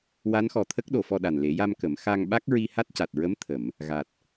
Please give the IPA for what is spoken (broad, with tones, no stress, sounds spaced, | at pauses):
w a˧˥ n x ɔ˨˩ t̪ʰ ə˦˥ k̚ ɗ o˨˩˨ f ɔ˧ ɗ a˨˩ n l e˨˩˦ j a˧ m k ə˨˩˦ m x a˧ ŋ ɓ a˦˥ k̚ ɹ i˧ h a˦˥ t̚ c a˨˩ t̚ ɹ ə˧˥ m t̪ʰ ə˨˩˨ m | ɣ a˨˩ t̚